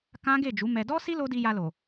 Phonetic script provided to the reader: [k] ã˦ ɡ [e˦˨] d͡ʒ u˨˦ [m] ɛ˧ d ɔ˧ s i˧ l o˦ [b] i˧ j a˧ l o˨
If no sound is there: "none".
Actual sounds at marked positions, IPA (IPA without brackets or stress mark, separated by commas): k, e˦˨, m, d